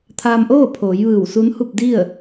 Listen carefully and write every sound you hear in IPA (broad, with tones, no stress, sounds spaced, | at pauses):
t̪ʰ aː˧ m ʔ oː˥˨ pʰ oː˩˧ j ʋ ɯː˧˩ w s u˧˥ n h u˥˨ p̚ d i˥˨ ə̯